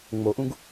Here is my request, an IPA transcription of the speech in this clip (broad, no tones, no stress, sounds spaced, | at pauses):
ŋ͡m o ʔ ũ ɡ